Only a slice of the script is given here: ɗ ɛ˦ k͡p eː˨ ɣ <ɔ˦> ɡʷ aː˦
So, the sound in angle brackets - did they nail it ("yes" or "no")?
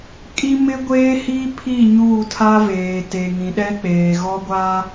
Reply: yes